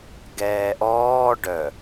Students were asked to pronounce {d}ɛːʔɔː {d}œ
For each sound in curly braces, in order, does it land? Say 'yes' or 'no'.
no, no

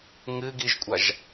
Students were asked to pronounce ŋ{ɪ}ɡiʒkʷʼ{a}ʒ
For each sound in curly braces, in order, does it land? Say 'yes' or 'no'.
no, yes

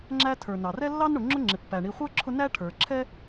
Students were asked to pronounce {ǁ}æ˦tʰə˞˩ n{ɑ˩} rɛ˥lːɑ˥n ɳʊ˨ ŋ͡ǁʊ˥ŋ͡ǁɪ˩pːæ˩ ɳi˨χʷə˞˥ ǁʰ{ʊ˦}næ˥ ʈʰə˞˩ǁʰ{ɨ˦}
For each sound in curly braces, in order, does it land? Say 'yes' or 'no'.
no, yes, yes, no

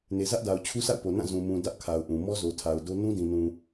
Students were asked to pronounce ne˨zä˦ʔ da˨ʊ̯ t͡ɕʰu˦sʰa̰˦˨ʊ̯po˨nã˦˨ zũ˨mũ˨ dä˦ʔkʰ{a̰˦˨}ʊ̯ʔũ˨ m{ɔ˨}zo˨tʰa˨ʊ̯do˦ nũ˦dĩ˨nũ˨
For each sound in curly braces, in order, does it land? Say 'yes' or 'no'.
no, no

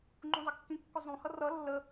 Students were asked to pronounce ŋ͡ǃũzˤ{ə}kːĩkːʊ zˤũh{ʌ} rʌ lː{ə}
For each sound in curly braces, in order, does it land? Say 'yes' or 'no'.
yes, yes, yes

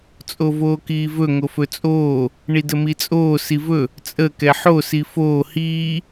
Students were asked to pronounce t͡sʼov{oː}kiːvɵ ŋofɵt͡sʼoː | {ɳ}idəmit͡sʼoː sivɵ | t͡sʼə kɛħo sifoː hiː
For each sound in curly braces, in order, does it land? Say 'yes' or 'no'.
yes, yes

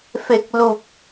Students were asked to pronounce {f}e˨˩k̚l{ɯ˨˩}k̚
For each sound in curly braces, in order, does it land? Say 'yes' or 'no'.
yes, no

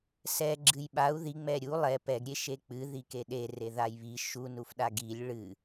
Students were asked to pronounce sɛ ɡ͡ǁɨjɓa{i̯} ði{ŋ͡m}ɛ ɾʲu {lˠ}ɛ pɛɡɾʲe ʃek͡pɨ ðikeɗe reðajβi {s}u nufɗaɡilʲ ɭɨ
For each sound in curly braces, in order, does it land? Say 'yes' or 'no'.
no, yes, yes, no

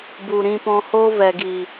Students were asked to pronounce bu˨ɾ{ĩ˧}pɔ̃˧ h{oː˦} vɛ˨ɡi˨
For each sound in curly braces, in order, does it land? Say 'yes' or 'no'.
yes, no

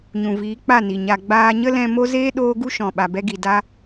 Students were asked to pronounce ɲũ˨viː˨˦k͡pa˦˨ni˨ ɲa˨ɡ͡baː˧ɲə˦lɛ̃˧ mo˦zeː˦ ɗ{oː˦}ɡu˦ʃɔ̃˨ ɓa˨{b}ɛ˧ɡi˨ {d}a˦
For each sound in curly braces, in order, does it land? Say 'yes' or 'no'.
yes, yes, yes

